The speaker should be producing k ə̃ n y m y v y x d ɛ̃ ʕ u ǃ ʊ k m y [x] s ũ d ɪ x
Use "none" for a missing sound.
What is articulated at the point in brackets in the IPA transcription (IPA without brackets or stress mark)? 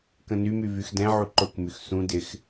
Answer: x